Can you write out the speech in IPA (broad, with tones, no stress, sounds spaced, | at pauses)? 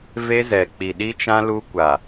v e˦ z ɛ˨ k͡p i˨ ɗ i˦ t͡ʃ ã˦ l u˦ kʷ a˨